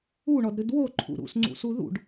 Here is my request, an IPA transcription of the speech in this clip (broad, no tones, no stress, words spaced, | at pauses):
uɳɔdɾɨd woǃʰṵ ɾṵsŋ͡ǀṵsu ðṵɖ